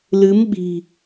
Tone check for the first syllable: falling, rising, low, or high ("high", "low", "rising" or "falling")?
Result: rising